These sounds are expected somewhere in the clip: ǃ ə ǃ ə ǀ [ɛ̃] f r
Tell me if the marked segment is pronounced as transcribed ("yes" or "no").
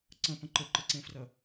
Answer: no